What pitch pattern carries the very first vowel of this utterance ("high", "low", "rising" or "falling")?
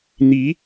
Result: rising